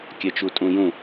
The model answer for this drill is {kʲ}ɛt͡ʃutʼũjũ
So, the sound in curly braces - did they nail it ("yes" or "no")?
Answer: yes